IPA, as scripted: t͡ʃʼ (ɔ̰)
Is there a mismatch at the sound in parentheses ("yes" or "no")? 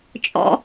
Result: no